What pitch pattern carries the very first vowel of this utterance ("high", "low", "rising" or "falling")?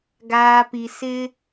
low